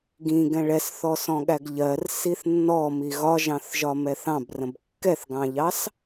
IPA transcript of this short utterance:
ɡ ĩ ɡ ɛ̃ ɭ ɛ s θ ɔ s ɔ̃ ɠ æ ɡ ʎ ɜ r s i θ nː ɔ m i ɣ ɒ ʒ ɑ̃ θ ʒ ɒ m ɛ θ ɑ̃ b r ə̃ b kː ɛ θ ɡ ɑ̃ ʎ ɑ s

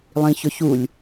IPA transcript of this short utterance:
lˠ ĩ ç ɵ ç u lʲ

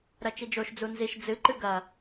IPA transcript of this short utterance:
ɾ ɐ t͡ʃ i d͡ʒ o ʃ d͡z u n z i ʃ d͡z ɨ ǃ ɨ ɡ ɐ

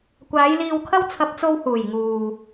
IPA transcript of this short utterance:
kʷ aː˨˧ j l iː˧ w kʰ ɐ˥ w t͡sʰ ɐ˧ p̚ t͡s o˧ w h uː˨˩ j ŋ uː˨

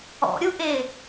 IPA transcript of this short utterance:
ɔ̰ ɾʲ u ʔ e

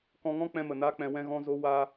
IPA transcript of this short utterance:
k ɔ̃˧ ŋ ɔ̃˦ k͡p ɛ̃˧ m ə˨ n a˦ k͡p ɛ̃˧ w ɛ̃˦ ɣ ɔ̃˦ z o˦ w a˦

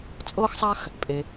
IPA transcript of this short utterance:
t͡sʼ ɤː˥ x sˤ a˥ x | pʼ e˩

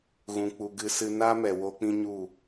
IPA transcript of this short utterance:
ɣ ũ˨ k͡p u˨ ɡ ɨ˧ s ɨ˧ n a˦ m ɛ˨ w o˦ k͡p ĩ˦ ɲ u˦˨

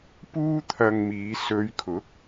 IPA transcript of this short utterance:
p uː˥ t̪ʰ ɐ˧ ŋ m iː˨˧ s ɵ˨˧ ɥ kʰ ʊ˨˥ k̚

